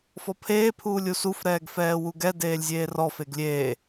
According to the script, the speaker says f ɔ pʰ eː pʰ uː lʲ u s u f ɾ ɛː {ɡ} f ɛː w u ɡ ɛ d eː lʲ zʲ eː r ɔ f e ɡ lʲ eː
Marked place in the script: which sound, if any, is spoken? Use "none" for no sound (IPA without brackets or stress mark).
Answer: ɡ